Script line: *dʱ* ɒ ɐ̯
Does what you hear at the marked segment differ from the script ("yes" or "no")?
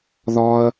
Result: yes